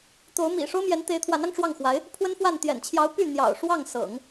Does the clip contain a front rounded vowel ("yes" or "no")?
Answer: yes